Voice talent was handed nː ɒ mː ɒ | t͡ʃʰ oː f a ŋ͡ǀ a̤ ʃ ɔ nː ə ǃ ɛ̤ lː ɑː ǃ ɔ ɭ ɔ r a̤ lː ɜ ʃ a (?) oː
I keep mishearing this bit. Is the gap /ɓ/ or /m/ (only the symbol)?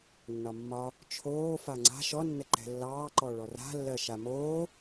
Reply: m